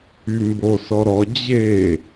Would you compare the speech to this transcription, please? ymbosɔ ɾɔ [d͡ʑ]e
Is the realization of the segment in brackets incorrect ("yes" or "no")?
no